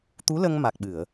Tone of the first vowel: rising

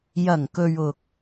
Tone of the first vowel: low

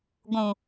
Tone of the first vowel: low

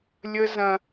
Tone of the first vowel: high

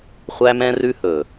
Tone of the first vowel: high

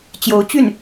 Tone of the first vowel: rising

